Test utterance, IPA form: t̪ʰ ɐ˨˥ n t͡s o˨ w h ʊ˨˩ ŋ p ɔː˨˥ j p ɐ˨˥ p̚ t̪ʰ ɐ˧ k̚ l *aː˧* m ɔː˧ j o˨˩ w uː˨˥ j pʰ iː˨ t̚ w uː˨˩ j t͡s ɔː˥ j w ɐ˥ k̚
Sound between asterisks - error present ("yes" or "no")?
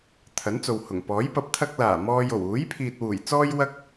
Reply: yes